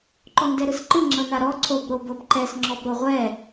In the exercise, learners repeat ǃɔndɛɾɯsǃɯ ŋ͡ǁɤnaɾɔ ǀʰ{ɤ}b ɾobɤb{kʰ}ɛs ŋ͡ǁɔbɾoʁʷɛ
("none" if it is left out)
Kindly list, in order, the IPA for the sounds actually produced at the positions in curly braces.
o, ǃ

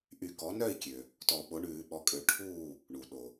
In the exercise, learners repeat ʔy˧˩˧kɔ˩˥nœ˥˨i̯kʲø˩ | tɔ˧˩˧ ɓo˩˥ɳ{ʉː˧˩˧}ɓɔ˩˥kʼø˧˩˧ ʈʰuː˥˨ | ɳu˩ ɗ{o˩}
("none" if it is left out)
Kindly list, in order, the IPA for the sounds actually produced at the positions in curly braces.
ʉː˧˩˧, o˩

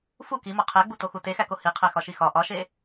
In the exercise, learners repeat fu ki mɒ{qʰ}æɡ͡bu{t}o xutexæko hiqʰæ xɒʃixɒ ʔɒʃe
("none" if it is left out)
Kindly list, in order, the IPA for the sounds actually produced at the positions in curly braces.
qʰ, t

